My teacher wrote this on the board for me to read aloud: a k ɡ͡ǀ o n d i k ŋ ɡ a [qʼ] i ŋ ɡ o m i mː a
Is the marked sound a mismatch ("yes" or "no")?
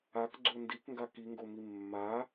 yes